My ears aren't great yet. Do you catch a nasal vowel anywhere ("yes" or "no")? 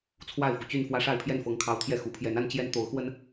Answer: no